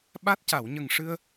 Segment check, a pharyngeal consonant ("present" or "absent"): absent